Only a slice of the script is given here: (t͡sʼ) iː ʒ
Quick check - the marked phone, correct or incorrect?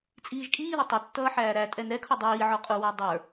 correct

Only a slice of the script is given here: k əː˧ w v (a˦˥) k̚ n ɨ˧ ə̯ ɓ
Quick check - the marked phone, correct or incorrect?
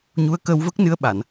incorrect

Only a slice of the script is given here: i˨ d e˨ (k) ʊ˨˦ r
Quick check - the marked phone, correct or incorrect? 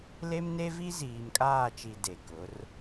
correct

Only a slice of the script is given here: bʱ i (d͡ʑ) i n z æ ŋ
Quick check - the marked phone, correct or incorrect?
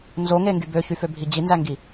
correct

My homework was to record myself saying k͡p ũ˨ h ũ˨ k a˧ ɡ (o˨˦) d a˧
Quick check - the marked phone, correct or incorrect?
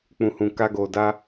incorrect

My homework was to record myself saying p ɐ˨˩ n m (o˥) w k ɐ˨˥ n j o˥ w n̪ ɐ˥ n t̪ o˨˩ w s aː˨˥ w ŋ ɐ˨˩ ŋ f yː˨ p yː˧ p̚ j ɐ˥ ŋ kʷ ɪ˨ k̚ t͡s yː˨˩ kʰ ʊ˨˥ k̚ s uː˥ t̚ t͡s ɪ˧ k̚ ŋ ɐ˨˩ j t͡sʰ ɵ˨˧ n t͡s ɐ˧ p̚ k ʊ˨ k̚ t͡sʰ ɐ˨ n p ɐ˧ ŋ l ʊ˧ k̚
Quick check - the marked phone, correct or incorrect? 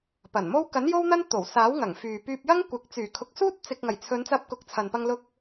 correct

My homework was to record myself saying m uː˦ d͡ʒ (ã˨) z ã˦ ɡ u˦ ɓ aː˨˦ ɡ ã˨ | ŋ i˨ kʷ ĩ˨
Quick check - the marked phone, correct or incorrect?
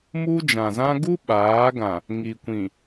correct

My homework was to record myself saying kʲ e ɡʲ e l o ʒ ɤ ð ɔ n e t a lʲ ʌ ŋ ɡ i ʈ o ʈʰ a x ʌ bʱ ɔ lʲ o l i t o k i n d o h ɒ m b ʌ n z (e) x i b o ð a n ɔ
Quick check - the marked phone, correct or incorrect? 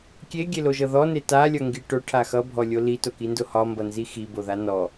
incorrect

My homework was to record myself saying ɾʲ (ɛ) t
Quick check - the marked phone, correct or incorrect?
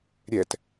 correct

